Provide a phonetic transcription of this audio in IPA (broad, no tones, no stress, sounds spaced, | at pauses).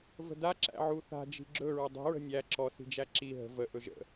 v ə̤ d a ǁ æ̰ ʕ u θ a̤ d͡ʒ i̤ ɡ͡ǁ ɵ ɹ ə dˤ i̤ ɹ ə̤ nʲ æ ǁ ɔ s i̤ d͡ʒ æ ǁ i ɦ ə̤ v ə ʔ ɵ ʒ ə̰